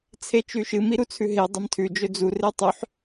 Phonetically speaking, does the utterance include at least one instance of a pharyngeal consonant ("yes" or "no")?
yes